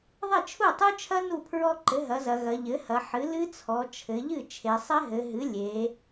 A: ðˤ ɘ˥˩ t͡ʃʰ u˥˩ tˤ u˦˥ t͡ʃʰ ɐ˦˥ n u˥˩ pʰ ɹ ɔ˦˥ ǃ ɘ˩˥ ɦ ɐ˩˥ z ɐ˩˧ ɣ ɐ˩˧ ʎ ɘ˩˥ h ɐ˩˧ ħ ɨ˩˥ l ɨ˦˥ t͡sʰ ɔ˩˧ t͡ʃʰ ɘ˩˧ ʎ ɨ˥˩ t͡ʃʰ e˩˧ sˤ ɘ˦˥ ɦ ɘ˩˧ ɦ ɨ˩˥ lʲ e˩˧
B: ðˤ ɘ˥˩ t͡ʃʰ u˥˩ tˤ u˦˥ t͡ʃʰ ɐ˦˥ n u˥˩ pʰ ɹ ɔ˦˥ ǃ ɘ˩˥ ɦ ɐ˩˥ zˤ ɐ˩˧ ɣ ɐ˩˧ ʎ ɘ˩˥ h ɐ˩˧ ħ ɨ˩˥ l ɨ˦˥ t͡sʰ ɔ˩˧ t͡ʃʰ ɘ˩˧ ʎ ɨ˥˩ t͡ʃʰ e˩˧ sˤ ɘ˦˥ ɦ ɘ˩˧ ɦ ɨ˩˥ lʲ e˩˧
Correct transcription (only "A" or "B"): A